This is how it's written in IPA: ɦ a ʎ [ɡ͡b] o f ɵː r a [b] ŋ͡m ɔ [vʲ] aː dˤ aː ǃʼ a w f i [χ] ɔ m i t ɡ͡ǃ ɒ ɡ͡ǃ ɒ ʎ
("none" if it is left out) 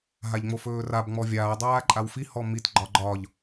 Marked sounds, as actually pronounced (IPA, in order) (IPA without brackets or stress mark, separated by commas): ŋ͡m, b, vʲ, h